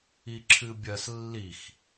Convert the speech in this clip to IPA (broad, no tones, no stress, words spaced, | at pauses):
iǁʰɨbʲɐs lːix